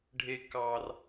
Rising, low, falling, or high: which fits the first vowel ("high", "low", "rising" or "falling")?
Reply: high